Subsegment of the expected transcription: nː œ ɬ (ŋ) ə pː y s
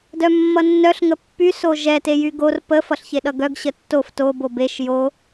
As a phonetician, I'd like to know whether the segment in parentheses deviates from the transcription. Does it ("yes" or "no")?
no